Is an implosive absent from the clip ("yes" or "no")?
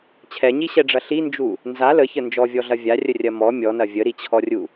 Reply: yes